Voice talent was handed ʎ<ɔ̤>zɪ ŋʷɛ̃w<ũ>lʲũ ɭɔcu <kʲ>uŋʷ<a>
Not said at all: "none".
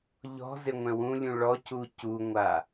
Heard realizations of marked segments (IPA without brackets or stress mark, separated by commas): ɔ̤, ũ, c, a